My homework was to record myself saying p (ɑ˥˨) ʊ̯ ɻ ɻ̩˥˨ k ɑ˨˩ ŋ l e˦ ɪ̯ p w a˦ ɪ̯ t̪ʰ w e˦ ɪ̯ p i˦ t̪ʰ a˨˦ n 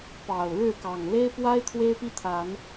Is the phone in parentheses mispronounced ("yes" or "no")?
yes